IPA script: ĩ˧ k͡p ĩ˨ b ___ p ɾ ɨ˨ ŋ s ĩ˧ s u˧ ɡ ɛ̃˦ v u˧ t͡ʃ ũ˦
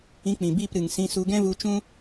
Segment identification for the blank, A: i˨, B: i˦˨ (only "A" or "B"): B